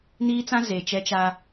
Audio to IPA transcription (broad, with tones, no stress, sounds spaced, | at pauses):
n iː˦ t͡s ã˦ z e˨ t͡ʃ ɛ˦ t͡ʃ a˦